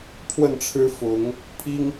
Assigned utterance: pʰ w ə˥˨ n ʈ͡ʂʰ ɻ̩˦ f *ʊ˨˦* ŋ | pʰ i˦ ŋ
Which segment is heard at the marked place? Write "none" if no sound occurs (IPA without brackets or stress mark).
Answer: ʊ˨˦